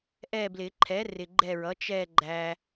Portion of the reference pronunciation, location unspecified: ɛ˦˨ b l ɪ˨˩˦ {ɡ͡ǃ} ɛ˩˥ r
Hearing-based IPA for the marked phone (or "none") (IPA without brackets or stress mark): ǃʰ